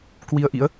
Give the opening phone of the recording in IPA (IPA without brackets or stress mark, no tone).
k